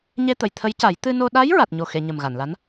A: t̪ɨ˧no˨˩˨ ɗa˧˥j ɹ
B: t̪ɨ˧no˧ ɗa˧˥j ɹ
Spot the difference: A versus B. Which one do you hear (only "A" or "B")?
B